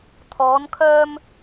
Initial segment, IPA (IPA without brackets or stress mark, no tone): t̪ʰ